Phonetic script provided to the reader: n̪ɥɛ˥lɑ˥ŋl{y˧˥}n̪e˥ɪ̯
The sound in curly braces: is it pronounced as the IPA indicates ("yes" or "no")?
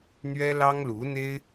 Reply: no